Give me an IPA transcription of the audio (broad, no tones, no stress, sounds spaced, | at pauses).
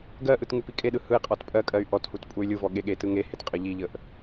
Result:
ɡ ɜ ʔ ɯ t ŋ u p i kʼ e ɗ ɯ h ɯ i̯ qʼ ɔ t pʼ ɜ kʼ ɜ y̯ ʔ ɔ t h u t pʼ u y̯ lʲ ɯ v ɔ ɠ e ɠ e t ɯ ŋ e h e t qʼ ə ʎ i ʎ ə ʔ